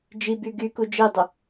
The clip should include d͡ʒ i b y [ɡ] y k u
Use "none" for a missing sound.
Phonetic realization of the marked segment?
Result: ɡ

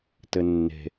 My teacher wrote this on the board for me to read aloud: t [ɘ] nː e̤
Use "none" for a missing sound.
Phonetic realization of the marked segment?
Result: ɘ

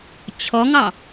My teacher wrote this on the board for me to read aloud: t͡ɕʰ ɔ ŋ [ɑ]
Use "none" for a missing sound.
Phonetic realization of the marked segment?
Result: ɑ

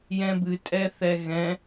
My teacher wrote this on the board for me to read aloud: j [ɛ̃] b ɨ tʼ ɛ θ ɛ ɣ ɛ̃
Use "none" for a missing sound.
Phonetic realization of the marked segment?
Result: ɛ̃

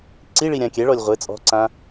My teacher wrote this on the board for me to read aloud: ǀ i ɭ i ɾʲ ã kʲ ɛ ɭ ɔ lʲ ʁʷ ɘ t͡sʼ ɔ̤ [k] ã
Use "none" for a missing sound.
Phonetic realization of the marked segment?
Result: ǀ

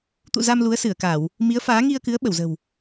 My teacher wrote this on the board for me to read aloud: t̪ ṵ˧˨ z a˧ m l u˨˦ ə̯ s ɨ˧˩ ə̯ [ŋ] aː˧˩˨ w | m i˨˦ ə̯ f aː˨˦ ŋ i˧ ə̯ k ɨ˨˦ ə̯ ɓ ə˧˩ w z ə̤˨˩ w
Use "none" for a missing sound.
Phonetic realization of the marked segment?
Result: k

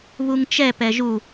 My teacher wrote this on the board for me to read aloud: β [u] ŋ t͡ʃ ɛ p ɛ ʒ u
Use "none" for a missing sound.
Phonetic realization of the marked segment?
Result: u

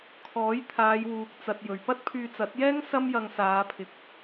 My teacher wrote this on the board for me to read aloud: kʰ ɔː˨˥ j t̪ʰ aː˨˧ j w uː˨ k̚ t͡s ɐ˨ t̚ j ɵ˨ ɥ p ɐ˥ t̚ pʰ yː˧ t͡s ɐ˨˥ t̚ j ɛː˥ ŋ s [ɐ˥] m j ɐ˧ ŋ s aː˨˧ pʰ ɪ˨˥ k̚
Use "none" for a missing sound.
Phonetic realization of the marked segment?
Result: ɐ˥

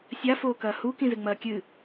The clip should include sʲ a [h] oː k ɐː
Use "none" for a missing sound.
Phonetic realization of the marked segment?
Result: f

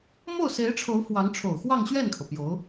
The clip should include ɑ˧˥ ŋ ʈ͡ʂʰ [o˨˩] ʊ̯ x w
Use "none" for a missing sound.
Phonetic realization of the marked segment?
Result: o˨˩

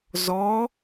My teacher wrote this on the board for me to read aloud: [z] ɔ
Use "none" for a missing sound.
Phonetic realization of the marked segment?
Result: z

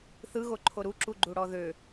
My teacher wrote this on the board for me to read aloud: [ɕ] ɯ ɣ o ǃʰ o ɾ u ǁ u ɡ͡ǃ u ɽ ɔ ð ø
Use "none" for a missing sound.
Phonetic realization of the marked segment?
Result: θ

